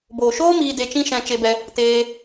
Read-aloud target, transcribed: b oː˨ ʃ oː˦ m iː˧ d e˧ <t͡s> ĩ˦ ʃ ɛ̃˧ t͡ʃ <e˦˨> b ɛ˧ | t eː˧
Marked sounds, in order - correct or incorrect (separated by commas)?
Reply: incorrect, incorrect